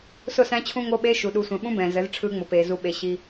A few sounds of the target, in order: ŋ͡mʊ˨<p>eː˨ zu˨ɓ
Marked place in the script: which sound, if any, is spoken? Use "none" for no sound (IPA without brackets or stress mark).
p